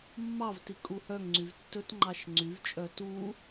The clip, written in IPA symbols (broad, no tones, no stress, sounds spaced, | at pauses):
mː ɑ v t i kʼ u h œ ŋ ŋ͡ǀ y v tː ɵ t ŋ͡ǃ ɑ ʃ ŋ͡ǀ y v t͡ʃʼ œ t u